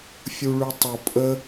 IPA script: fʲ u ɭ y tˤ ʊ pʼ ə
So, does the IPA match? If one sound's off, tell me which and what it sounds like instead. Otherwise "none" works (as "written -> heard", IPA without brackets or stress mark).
none